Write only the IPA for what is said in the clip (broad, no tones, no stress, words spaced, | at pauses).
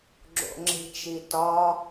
ɡ͡ǁo̰ŋ͡ǁe̤t͡ʃitɒ